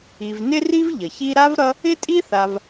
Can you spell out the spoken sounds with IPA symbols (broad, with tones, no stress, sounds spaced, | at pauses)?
i˨ v n ɪ˥ r i˥ v ʎ ʌ˩ ç i˥ ɾ a˥ v ɾ ʌ˦ | ɪ˥ tʼ i˥ θ a˨ v